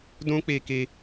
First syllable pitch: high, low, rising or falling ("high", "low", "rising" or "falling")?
high